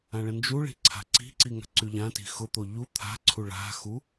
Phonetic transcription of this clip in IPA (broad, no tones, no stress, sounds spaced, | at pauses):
ã ɭ ə̃ n d͡ʒ u ɭ i̤ ǀʰ a̤ ǀ i̤ ǀ i ŋ a̤ ǀ y ʎ ã t i̤ x ʊ t̪ o ʎ u t̪ʰ a̤ ǀʰ u ɭ a̤ x u